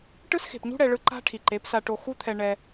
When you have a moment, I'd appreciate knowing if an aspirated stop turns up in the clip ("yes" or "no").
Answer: yes